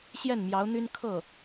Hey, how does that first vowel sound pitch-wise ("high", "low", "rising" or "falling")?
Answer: falling